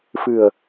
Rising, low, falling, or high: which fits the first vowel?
low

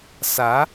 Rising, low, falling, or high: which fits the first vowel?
rising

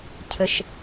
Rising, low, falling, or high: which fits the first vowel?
low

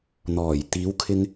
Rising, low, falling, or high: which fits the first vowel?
low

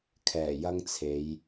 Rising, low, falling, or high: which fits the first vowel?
low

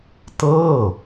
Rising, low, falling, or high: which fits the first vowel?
falling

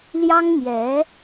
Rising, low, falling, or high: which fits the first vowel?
high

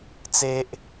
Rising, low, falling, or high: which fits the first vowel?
high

